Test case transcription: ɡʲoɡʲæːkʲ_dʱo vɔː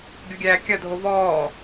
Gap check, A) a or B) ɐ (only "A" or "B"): B